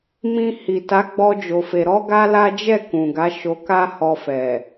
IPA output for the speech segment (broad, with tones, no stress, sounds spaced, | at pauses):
m ĩ˧ h i˨ t a˨˦ ɡ͡b ɔ˦ d͡ʒ o˧ f e˧ ɾ ɔ˦ ɡ a˦ l a˦ d͡ʒ ɛ˦˨ k ũ˨ ɡ a˨˦ ʃ o˧ k a˦ h ɔ˧ f ɛ˨